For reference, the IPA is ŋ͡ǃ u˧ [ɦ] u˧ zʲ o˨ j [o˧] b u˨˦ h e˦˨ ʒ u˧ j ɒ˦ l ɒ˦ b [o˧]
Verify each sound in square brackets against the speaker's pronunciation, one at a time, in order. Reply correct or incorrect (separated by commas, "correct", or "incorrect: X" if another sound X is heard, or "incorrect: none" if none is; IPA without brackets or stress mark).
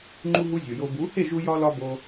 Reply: correct, correct, correct